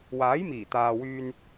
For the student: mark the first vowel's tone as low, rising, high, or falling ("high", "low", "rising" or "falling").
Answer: rising